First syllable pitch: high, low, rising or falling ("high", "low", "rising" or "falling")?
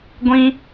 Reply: high